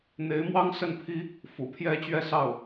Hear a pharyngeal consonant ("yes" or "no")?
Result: no